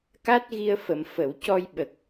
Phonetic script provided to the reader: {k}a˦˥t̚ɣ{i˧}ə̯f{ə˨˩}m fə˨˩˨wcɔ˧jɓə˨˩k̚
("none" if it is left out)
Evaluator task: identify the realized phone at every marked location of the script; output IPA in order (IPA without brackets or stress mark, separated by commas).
k, i˧, ə˨˩˨